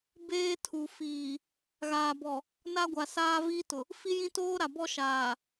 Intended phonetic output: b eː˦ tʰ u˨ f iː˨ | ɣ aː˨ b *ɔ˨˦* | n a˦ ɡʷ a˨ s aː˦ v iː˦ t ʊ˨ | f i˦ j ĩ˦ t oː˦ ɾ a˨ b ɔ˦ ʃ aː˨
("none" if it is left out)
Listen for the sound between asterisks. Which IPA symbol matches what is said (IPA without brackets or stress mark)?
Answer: ɔ˨